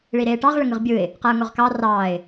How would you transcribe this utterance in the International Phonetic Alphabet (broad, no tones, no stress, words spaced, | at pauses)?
ɭiɾeːʈɑʁ ɭəŋɯʁbʲɯɪ̯ | qaʊ̯ŋoʁkɑ rɑːɪ̯